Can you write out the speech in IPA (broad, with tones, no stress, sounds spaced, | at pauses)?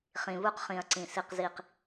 χ ĩ˨ β u˦ q χ ĩ˨ ɐ̯ ǀ ĩ˨ s i˦ q z i˦˨ q